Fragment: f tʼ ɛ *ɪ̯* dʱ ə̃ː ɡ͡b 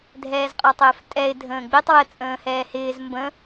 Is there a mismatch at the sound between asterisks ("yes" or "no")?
no